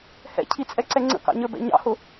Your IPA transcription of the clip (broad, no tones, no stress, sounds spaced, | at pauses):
h ɛ̰ cʰ i t͡sʼ ɛ ǀ ɛ ŋ͡ǀ ə̰ k ɑ̰ ɲ ə˞ b ɛ̰ ɲ ɑ̰ h ʊ